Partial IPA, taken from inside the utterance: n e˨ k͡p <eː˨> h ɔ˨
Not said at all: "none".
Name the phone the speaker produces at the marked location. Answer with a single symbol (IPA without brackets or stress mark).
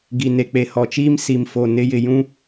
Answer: e˨